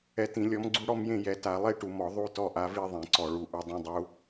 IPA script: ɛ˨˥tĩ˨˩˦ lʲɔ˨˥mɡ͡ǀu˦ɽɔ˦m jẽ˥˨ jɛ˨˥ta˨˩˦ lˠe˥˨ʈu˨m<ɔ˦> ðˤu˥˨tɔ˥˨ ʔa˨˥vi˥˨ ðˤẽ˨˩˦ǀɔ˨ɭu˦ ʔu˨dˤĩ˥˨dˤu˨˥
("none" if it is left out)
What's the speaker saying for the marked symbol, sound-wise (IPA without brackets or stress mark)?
ɔ˨˩˦